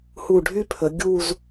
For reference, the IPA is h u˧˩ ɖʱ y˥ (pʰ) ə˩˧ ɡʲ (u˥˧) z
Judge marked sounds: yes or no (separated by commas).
yes, yes